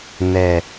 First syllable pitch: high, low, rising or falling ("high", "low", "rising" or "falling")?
low